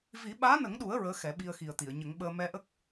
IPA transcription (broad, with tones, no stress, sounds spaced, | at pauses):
v i˨˩˦ ɓ aː˧˥ n ə˨˩˦ ŋ ɗ u˨˩˦ ə̯ ɹ əː˧˥ x ɛ˨˩˦ ɓ i˧ ə̯ x i˨˩ ə̯ t̪ i˨˩˨ ə̯ ɲ ə˨˩˦ ŋ ɓ əː˧ m ɛ˧ ʔ ə˦˥ k̚